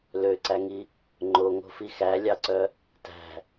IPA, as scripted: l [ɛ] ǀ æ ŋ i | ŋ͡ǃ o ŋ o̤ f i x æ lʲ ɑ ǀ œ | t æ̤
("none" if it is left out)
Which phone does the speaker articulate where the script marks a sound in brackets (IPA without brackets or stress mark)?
ø